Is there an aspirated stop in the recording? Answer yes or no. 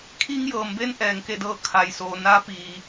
yes